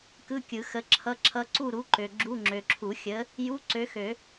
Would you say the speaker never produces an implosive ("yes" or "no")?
yes